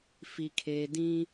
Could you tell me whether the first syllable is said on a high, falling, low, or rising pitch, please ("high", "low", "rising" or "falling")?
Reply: low